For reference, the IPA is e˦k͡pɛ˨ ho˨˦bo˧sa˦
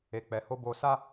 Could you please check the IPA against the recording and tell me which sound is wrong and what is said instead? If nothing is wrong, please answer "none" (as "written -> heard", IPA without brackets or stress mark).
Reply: e˦ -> e˨